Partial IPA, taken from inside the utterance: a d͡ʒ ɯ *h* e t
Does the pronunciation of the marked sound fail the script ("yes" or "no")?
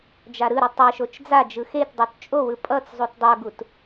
yes